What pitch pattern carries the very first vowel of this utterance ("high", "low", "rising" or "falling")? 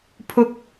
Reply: high